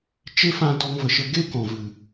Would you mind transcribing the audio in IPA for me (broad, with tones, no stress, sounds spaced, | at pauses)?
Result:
t͡ʃ e˦ f ã˧ d ɔ˧ ŋ v ə˨ ʃ ə˧ ɡ e˦ k ɔ̃˨ v ɨ˨